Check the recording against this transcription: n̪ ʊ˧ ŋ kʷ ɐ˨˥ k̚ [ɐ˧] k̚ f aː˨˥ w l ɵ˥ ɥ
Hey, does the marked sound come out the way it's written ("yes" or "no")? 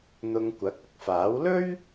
yes